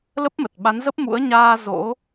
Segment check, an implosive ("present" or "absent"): present